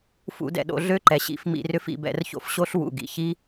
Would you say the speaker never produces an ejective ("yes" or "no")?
yes